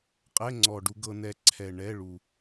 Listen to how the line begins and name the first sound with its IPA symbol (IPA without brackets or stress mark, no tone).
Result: qʼ